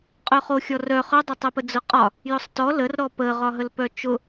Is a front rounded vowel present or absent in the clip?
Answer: present